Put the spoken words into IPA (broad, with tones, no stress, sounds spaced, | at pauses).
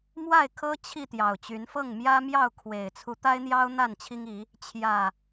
m w a˥˨ ɪ̯ kʰ ɤ˦ t͡ɕʰ i˥˨ t̪ j ɑ˨˩ ʊ̯ t͡ɕ y˨˦ n f ɤ˥˨ ŋ m j ä˦ m j ɑ˥˨ ʊ̯ kʰ w e˨˩ ɪ̯ t͡sʰ u˨˦ t̪ a˦ ɪ̯ n̪ j ɑ˦ ʊ̯ n̪ a˥˨ n t͡ɕʰ i˦ ŋ i˨˦ | t͡ɕʰ j ä˨˩